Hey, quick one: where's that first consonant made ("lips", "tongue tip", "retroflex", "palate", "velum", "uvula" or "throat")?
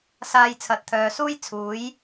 tongue tip